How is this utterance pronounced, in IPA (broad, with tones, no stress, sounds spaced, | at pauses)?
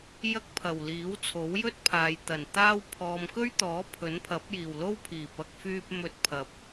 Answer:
j ɐ˥ k̚ pʰ ɐ˨˩ w l iː˨˥ w t͡sʰ o˨˥ w j ɵ˥ t̚ pʰ aː˨ j t̪ ɐ˨˩ n t̪ aː˥ w pʰ ɔː˨ m k ɵ˥ ɥ t̪ ɔː˨˥ pʰ ɵ˨˥ n pʰ ɐ˨˥ p̚ j iː˨˩ w l o˥ w pʰ iː˨˩ p ɐ˨ k̚ f yː˧ p̚ m ɵ˧ t̚ pʰ ɐ˨ p̚